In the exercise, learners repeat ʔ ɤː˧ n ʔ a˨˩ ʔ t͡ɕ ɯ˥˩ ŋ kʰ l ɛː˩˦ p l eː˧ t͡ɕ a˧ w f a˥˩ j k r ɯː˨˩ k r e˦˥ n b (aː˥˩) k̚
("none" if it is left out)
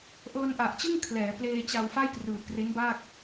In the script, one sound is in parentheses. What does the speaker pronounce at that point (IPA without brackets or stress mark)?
aː˥˩